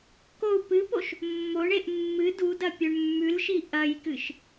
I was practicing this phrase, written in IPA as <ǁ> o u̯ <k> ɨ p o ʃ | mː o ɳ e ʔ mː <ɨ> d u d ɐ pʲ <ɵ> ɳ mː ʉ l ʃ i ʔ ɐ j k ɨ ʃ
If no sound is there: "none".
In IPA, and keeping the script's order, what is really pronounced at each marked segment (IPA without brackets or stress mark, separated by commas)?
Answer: k, p, ɨ, ɵ